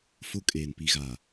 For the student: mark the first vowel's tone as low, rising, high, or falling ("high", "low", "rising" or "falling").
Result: high